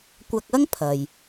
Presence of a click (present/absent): absent